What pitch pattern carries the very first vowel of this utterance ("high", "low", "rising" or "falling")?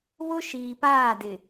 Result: high